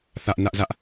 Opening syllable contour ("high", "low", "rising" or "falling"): high